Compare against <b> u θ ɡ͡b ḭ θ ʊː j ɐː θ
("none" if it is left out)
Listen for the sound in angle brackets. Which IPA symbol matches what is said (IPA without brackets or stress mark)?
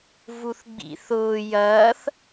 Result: v